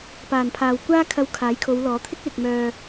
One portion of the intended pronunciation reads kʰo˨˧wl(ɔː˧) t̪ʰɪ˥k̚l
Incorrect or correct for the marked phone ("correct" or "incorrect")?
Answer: incorrect